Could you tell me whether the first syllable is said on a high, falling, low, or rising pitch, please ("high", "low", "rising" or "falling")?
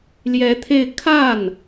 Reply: rising